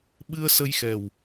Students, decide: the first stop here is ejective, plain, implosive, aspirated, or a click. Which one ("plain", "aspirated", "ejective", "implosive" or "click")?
implosive